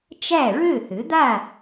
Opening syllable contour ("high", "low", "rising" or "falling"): falling